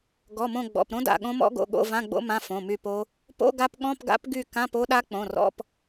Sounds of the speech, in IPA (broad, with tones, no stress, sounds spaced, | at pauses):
ɡ ɔ˩˧˩ m õ˦˨ ɡ͡b ɔ̰˩˧˩ p ɾ õ˦˥ d a̰˩˧˩ ɠ õ˦˥ m ɔ̰˦˥ ɡ o̰˩˧˩ ɠ o̰˧˥˧ v ã˧˥˧ ɡ͡b o̰˦˥ m ã˧˥˧ f õ˩˧˩ m y˦˨ p o˦˥ | p o̰˧˥˧ ɡ a˦˥ p ɠ ɔ̃˧˥˧ p ɡ a̰˦˥ p ɡ y˦˨ k ã˧˥˧ p o˦˥ ɗ a˦˥ k͡p õ˩˧˩ r ɔ̰˧˥˧ p